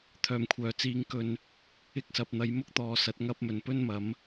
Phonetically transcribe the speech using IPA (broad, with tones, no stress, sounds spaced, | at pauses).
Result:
t̪ʰ œː˨˩ m kʷʰ œː˨˩ t͡s iː˨˧ ŋ k ɵ˧ n | ɪ˧ k̚ s ɐ˨ p̚ n̪ ɐ˨˧ j m ʊ˥ k̚ t̪ ɔː˨ s ɐ˨˥ t̚ ŋ ɐ˧ p̚ m ɵ˨˩ n p ɵ˥ n m ɐ˨˥ m